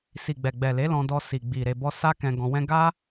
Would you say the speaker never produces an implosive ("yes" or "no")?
yes